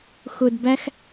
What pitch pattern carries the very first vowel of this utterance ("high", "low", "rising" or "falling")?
high